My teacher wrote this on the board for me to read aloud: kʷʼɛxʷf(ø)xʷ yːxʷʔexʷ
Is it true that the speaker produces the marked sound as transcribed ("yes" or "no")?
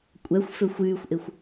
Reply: yes